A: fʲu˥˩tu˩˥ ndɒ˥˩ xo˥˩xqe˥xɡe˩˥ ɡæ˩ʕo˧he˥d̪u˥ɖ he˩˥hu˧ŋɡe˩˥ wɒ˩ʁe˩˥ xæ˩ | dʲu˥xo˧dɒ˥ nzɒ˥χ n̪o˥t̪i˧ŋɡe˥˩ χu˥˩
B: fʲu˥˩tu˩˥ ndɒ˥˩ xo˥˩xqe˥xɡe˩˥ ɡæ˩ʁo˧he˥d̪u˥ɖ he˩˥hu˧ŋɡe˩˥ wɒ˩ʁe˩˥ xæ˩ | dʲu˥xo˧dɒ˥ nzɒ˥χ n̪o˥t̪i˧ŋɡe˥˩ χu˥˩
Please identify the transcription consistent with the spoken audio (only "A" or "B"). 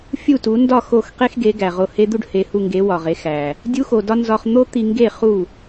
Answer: B